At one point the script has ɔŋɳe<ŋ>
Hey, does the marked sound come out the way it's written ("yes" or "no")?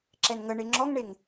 yes